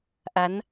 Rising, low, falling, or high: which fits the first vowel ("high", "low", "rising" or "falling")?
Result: rising